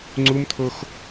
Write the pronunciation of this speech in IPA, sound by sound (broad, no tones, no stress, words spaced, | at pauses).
ŋ͡ǀumt̪ʰox